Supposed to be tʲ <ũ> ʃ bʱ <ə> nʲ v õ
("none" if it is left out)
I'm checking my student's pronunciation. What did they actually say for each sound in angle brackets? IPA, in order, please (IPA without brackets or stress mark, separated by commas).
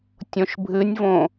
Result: õ, ɨ